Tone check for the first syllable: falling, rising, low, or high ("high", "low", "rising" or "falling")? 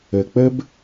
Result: low